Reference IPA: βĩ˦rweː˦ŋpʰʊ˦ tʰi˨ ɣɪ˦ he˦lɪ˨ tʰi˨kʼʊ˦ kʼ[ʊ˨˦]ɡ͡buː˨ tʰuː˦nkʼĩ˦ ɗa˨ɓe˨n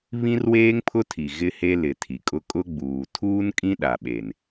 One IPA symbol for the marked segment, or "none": ʊ˦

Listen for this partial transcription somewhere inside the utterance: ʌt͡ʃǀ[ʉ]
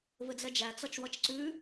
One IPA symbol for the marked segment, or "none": ʉ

